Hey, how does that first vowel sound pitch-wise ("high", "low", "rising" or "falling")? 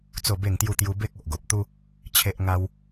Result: falling